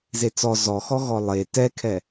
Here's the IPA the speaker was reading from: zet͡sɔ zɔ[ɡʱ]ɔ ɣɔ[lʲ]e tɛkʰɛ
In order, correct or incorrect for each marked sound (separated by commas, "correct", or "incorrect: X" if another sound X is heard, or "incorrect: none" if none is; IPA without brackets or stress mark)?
incorrect: x, incorrect: lˠ